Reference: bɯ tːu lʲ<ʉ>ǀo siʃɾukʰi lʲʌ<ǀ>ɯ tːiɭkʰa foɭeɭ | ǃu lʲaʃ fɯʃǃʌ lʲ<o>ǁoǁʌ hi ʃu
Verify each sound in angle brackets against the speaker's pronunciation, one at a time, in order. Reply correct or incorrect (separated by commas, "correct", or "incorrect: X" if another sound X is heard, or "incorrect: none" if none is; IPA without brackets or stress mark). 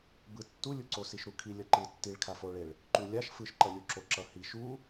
incorrect: u, incorrect: ǃ, incorrect: u